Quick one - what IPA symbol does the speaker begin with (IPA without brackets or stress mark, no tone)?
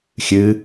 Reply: xʲ